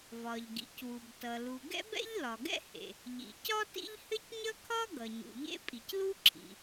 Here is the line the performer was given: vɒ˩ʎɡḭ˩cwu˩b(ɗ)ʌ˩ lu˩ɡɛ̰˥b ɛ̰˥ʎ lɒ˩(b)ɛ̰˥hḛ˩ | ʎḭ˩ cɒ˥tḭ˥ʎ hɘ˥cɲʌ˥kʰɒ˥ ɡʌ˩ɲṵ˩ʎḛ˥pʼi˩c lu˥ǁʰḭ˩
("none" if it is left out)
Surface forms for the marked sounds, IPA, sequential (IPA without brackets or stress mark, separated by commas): t, ɡ